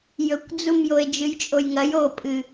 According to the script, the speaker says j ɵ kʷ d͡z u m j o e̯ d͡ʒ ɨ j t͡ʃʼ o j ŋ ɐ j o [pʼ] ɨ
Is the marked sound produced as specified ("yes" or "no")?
yes